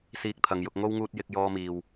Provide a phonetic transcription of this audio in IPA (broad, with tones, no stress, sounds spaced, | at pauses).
s iː˧ k̚ t̪ʰ ɐ˨ ŋ j ʊ˧ k̚ ŋ o˥ w ŋ uː˧ t̚ j ɪ˧ k̚ j ɔː˧ m iː˨ w